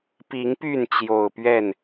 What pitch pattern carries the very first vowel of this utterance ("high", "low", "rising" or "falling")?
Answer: rising